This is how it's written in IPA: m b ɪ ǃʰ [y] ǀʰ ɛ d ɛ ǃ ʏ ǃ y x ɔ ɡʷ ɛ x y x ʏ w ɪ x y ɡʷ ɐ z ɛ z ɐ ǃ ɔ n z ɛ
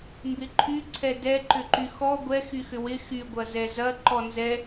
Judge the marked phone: correct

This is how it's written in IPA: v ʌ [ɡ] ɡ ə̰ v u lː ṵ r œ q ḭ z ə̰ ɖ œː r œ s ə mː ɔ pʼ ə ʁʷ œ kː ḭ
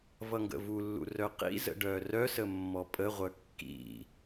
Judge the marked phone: incorrect: ŋ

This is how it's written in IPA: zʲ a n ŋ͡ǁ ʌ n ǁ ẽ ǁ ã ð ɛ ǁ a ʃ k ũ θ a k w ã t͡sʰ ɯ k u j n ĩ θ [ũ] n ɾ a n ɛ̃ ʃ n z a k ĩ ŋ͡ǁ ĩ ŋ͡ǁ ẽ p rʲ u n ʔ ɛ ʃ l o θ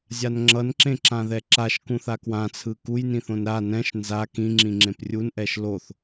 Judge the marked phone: incorrect: õ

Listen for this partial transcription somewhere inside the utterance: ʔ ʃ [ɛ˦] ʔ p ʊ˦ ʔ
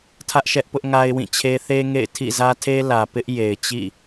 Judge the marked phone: correct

